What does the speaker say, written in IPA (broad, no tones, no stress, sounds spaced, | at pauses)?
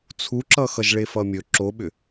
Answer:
t͡sʰ u ǁ ʌ x ʌ ʒ ɭ e f ʌ mʲ ɵ ǁ o ɓ ʏ